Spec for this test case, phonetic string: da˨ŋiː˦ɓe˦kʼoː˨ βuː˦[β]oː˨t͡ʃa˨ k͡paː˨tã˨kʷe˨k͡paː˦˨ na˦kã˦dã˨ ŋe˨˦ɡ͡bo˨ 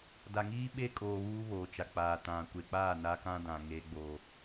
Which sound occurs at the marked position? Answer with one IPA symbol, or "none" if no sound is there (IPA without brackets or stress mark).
β